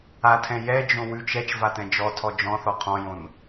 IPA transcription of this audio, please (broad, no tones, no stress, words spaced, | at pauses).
atʰɛ̃ jɛd͡ʒõ wʉt͡ʃ ɛt͡ʃvatɛ̃ d͡ʒɔtʰɔ d͡ʒɔ̃θɔ qʰɔ̃jõn